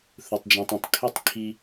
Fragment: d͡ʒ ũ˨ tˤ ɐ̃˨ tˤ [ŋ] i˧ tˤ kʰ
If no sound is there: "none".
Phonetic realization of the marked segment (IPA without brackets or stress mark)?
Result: kʰ